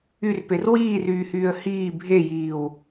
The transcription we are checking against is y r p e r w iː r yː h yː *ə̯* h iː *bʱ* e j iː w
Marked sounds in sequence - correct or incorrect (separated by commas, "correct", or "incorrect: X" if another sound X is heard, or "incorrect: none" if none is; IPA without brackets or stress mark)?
correct, correct